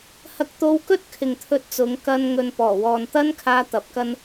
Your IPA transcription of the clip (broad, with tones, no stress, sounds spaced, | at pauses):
h ɐ˧ k̚ t̪ o˧ w k ɵ˥ t̚ kʰ ɪ˨ ŋ t̪ʰ ɵ˧ t̚ t͡s ʊ˨˧ ŋ k ɐ˧ n ŋ ɵ˨ n p ɔː˨˩ w ɔː˨ n t̪ ɐ˥ n kʰ aː˧ t̪ ɐ˨˥ p̚ k ɐ˥ n